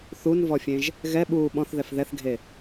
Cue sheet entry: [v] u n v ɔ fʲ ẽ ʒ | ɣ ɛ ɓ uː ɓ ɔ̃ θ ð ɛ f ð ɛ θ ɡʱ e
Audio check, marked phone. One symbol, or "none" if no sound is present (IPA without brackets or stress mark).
θ